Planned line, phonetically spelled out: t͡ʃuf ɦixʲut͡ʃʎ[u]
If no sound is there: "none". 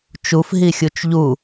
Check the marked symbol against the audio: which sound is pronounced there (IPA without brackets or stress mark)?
u